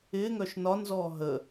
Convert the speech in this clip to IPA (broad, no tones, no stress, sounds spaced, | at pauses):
ɪː ŋ œ ʃ n ɒ n z ɔː ɦ ə